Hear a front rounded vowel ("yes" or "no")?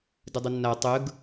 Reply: no